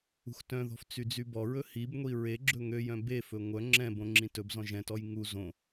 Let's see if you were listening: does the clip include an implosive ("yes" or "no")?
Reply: no